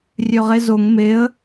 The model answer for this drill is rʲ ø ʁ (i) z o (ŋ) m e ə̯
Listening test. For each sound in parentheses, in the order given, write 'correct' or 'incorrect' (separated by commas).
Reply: incorrect, correct